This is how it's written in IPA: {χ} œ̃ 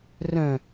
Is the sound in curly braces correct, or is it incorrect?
incorrect